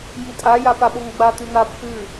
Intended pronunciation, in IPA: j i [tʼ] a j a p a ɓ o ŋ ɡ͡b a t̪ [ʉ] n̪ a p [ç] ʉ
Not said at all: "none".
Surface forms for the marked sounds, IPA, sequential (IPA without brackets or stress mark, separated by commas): tʼ, ʉ, x